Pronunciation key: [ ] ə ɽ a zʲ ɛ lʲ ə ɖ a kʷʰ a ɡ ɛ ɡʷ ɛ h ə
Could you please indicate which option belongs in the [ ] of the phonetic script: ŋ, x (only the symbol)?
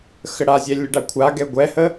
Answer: x